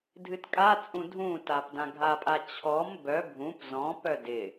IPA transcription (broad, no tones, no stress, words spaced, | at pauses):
dʱɨtkʼat͡sʼũ dʱũtapdã ɡʱapʼat͡ɕʰɔm bœ bʱũp zɔ̃ pœdɪ